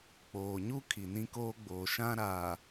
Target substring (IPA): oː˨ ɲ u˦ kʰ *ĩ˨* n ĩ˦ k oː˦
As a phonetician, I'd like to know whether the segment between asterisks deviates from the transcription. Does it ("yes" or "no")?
yes